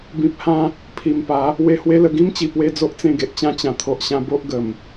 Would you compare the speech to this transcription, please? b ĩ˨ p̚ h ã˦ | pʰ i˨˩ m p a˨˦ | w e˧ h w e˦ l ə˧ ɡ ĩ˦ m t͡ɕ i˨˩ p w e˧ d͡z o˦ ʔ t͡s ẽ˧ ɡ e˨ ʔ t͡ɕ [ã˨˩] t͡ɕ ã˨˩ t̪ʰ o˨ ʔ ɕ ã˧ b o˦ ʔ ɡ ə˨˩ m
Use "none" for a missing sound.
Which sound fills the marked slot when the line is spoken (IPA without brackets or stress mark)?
ã˦